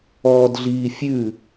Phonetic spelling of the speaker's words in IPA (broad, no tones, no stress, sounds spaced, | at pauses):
ɔː d ɮ iː fʲ ʉ